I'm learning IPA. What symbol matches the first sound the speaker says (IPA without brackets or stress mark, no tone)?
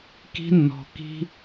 k